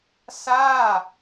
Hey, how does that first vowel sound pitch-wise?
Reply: falling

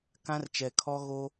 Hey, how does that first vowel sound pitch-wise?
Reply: high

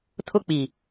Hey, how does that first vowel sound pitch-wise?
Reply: high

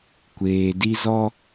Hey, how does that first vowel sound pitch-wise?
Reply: low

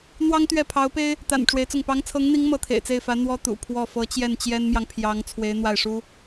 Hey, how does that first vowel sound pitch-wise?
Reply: high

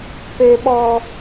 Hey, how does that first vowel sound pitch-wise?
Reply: low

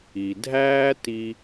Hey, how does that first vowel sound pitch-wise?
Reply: low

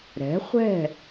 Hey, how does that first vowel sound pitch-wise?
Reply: rising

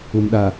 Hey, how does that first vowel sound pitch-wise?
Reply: low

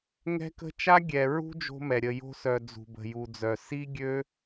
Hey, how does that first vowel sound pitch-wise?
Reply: high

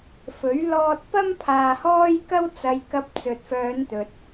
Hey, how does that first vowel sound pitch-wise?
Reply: rising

